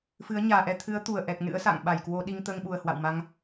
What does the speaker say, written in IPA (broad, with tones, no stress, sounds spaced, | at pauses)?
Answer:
f ɨ˨˦ ə̯ ɲ aː˨˩ ʔ ɛ˧ t̪ʰ ɨ˨˦ ə̯ t̪ u˧˩ ə̯ ʔ ɛ˨˩ k̚ n ɨ̰˧˥ ə̯ s a̰˧˨ ŋ ɓ a˧˩ j k w o˧ ɗ i˧ ŋ t̪ əː˧ ŋ ɓ u˨˩ ə̯ h w a̰˧˨ w m a˧ ŋ